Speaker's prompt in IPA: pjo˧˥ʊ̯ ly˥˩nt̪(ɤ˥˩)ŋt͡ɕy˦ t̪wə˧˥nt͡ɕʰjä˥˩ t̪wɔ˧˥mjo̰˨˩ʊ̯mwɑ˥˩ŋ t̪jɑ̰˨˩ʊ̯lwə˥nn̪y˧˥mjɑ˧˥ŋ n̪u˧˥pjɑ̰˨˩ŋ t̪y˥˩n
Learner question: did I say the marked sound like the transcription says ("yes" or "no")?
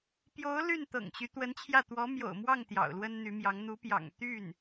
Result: no